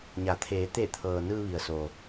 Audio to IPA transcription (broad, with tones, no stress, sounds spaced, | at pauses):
ɲ a˩˧ t̪ʰ eː˩˧ t̪ e˧˩ t̪ʰ ɤː˩ n ɯː˧ ʋ i˩ ə̯ s o˩